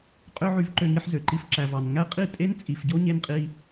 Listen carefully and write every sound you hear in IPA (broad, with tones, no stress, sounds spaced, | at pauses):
qʼ ø˦ ʕ y˧ v ǃ ø˧ ŋ i˧ ħ z ø˨ ǃ i˧ f ǁ æ˨ v ɑ˨ n ŋ æ˦ qʼ i˦˨ tʼ e˦ n t͡sʼ i˨ f ɟ o˦ ɲ e˧ n qʼ i˧